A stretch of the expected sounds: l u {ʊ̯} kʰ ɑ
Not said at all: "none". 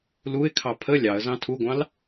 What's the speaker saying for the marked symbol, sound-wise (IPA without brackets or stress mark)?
ɪ̯